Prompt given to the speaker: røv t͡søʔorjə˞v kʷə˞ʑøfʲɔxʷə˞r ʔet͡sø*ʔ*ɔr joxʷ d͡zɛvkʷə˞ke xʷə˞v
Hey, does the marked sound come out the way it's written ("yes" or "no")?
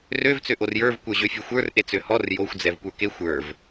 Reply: no